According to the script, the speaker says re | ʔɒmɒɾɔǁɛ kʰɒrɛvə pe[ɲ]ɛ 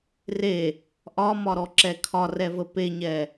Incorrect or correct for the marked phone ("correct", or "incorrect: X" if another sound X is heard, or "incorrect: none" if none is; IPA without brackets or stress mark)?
correct